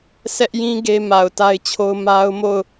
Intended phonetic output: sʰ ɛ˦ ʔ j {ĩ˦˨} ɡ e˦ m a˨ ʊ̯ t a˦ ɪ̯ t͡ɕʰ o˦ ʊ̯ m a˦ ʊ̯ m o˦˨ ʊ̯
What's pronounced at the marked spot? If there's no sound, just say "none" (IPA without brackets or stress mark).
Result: ĩ˦